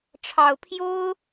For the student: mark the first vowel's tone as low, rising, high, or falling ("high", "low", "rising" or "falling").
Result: low